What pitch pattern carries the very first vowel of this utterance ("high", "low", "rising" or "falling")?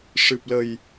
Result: low